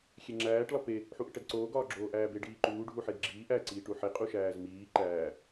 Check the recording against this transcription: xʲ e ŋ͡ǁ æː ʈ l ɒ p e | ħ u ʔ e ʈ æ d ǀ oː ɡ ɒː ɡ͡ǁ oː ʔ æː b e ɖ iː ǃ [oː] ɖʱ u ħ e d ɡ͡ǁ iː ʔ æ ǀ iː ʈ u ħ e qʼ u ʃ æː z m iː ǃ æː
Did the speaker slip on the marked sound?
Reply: yes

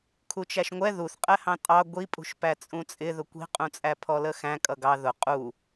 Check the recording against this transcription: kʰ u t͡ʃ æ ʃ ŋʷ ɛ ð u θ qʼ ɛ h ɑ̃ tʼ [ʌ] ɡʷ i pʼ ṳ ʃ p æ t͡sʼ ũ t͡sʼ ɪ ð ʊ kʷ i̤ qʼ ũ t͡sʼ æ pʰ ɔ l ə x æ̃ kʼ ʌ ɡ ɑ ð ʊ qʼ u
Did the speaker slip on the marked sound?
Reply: yes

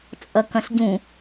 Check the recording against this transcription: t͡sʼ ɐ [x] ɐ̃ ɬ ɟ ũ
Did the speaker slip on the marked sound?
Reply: yes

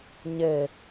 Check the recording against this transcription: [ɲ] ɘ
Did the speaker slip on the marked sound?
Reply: no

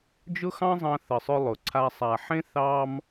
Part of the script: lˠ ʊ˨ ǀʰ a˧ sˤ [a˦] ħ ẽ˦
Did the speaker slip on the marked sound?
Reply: yes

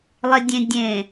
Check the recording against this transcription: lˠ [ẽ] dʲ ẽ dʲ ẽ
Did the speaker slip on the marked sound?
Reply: yes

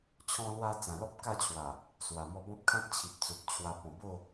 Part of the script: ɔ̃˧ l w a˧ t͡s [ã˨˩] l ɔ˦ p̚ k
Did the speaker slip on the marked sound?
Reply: no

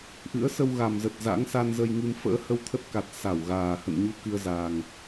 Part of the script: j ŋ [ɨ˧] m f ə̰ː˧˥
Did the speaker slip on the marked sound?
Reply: no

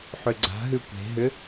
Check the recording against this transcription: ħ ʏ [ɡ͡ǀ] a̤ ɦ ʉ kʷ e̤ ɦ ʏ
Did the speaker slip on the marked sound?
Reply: no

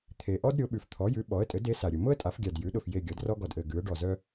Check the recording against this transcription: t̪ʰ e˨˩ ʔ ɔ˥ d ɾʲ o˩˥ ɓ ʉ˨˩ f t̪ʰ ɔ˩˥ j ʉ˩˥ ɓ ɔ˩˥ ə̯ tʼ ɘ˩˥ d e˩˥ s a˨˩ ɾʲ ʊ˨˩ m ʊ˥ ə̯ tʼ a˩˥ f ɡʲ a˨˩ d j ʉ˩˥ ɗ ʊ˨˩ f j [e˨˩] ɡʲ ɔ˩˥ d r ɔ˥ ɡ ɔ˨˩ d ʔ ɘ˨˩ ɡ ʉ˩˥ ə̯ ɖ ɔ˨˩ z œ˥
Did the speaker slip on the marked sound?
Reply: no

